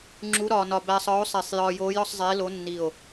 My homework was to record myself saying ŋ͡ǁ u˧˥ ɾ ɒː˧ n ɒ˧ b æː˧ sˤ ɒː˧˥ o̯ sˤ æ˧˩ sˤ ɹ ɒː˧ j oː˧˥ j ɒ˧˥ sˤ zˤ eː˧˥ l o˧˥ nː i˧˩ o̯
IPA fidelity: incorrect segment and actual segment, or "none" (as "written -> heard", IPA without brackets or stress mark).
ɹ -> j